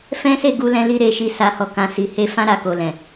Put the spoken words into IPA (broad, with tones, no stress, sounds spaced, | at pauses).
f ɛ̃˦ s e˦˨ ɡ u˧ l ɛ̃˧ l i˧ ɾ e˧ ʃ i˧ s a˧ h ɔ˧ k ã˨ s i˨ h e˧ f ã˦ ɾ a˧ k o˨ l ɛ̃˨